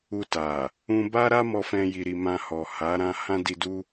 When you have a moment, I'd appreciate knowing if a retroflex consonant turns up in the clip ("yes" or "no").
no